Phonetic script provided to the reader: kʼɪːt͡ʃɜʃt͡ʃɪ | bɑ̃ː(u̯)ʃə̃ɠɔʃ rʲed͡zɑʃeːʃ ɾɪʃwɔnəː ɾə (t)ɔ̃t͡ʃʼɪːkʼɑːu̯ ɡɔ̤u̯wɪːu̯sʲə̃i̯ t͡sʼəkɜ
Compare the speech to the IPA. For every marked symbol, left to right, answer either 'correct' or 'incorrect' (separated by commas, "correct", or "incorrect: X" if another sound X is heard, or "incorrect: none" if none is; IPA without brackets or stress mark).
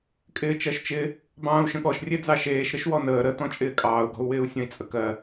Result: correct, correct